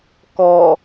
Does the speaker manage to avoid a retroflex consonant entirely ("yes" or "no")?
yes